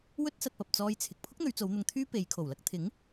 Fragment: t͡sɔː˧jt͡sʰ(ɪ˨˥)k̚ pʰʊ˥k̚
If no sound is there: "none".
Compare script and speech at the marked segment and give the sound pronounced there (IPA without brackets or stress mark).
ɪ˨